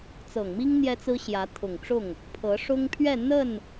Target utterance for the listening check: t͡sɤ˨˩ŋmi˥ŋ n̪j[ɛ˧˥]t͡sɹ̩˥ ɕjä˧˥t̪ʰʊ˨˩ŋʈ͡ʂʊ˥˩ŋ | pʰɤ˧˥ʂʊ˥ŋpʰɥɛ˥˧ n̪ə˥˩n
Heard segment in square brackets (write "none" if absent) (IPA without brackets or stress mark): ɛ˥